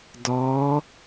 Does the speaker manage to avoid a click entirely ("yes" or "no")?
yes